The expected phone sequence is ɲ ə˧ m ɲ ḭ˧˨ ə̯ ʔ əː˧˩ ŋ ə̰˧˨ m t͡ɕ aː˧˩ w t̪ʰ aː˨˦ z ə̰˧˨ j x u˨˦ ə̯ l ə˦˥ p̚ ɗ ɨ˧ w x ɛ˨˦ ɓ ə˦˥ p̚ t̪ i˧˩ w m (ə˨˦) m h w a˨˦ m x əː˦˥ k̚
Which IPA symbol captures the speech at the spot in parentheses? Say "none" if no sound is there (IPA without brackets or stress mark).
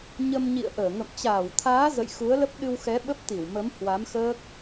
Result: ə˨˦